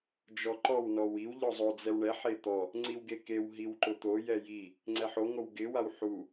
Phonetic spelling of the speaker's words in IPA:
d͡ʒ ɔ ǃ ɔ w n ɔ w i w ʎ ɔ zˤ o d͡z ɛ w ɳ ɛ ħ e t̪ ɔ | ŋ͡ǀ i w ɡ e k e w ɦ i w ǃ ʊ t̪ o j ɛ j i | ŋ͡ǀ ɛ ħ o ŋ o w ɡ ɪ w a w ħ u

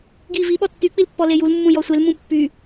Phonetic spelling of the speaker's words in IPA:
ɡ i v i ɓ ɔ tː y k͡p i l pː ɔ l e j u l mː ũ j ɔ sʷ e l m ũ pː y

